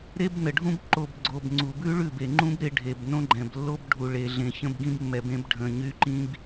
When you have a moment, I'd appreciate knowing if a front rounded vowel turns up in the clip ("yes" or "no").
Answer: yes